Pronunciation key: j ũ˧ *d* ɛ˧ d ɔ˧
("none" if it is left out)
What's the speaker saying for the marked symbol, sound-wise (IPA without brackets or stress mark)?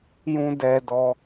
d